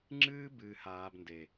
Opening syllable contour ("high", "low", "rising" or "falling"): high